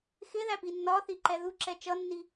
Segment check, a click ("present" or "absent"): present